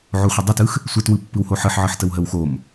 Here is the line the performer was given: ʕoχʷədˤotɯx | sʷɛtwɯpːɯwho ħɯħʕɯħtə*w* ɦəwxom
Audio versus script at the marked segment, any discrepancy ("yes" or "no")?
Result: no